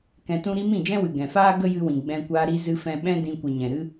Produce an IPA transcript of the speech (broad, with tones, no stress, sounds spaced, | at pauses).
k ɛ̃˧ t ũ˦ ɾ i˦ m ĩ˦˨ d͡ʒ ɛ̃˦ w ɨ˨ ɡ ɛ̃˨ f aː˦ ɡ ə˦ j ɨ˧ w ĩ˨ ɡ͡b ɛ̃˧ kʷ a˧ ɾ i˧ z ɨ˧ f ɛ̃˧ ɓ ɛ̃˦ d ĩ˧ kʷ ɨ˨ ɲ ɛ̃˨ ɾ ɨ˧